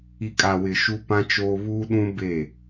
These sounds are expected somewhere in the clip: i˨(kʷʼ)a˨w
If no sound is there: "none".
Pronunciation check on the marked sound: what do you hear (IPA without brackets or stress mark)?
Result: kʼ